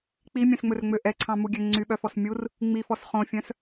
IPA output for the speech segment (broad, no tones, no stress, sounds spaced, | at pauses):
k͡p i mʲ œ̃ s ŋ͡m ɵ r ŋ͡m ø ʔ ɛ ǀʰ ɑ̃ m u ɡʲ ø ŋ͡ǀ y ɓ œ f ɔ s mʲ u r | ŋ͡m i f ɔ s χ õ fʲ œ̃ s